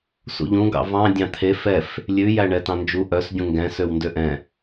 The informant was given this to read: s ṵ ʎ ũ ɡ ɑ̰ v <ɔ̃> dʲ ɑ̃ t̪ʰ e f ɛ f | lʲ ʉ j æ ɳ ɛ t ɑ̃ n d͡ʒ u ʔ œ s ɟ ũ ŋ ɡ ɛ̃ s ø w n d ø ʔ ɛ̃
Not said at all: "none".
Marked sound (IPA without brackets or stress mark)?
ɑ̃